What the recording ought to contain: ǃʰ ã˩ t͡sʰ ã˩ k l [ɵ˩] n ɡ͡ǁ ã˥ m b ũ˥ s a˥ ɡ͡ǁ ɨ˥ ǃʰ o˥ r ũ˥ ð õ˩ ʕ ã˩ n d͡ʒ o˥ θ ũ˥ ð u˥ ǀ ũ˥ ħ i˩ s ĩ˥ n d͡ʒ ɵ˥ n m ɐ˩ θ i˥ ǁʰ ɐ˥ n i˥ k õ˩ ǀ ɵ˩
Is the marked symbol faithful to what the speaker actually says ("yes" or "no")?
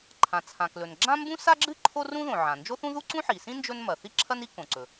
yes